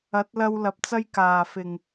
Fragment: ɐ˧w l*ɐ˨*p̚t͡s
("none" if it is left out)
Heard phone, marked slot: ɐ˨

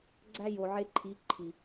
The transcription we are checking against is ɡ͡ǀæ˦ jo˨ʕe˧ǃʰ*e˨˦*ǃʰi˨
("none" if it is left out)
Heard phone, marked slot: i˨˦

